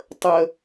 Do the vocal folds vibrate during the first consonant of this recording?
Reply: no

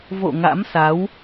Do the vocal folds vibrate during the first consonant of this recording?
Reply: yes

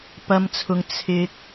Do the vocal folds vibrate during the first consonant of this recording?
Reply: no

